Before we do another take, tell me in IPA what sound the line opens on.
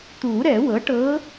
t̪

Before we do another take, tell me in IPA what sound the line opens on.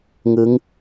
ŋ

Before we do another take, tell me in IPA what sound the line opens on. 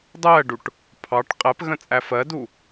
dˤ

